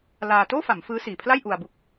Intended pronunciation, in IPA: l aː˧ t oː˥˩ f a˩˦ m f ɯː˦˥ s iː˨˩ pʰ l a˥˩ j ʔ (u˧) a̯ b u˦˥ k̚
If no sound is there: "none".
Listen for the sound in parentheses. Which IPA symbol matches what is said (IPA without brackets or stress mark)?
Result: u˧